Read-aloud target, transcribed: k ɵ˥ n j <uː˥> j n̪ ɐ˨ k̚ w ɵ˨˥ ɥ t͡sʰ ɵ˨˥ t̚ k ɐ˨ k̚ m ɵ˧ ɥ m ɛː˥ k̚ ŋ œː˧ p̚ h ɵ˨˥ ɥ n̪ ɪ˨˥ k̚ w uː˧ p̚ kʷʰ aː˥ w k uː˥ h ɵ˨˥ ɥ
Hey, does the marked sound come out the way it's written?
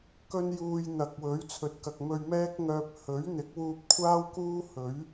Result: no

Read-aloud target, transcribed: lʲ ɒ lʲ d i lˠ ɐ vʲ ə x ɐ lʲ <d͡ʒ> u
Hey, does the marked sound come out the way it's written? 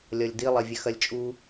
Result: no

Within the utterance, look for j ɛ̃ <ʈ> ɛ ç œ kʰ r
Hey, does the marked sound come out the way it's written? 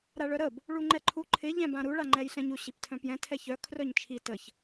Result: no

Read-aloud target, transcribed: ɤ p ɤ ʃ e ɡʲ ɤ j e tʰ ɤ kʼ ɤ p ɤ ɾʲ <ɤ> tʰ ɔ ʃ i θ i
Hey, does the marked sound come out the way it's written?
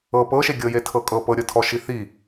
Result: yes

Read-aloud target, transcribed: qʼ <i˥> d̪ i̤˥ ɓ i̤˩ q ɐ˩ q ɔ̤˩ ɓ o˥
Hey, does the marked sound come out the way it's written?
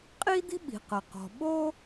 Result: yes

